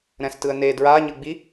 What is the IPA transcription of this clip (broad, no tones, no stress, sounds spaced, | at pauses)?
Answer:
ɾ ɛ̃ s t ɯ ə̯ n e d ɹ a ɲ ɯ ɡ͡b i